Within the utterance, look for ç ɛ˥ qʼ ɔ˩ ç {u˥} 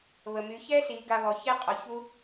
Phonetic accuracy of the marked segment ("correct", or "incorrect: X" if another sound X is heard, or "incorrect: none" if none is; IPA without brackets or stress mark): correct